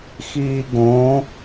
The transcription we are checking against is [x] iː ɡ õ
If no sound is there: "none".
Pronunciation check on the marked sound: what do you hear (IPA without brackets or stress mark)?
x